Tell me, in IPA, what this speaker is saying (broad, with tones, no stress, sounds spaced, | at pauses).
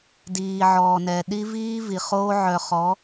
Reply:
d iː˨ ʕ ɔː˨ n ɛ˨ ɗ i˦ v iː˦ v i˨ χ oː˦ ʕ œ˨ χ ɔ˨˦